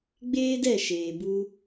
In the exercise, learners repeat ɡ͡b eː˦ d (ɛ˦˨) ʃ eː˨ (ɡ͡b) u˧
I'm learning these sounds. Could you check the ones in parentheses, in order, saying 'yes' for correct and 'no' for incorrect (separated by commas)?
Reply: yes, no